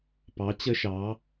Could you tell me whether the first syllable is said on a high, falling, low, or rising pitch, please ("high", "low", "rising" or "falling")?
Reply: rising